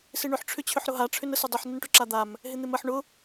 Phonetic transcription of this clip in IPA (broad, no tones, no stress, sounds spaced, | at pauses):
s ɪ ɳ ʏ ħ ʈ͡ʂʰ ʏ t͡ɕʰ ʏ ħ ɾ ʊ ɦ a ʈ͡ʂʰ ʏ n ə s ʊ dˤ ʏ ħ n ə n ʈ ʊ ǁ a d̪ a m | ɦ ɪ n̪ ɪ m ə ħ ɳ ʊ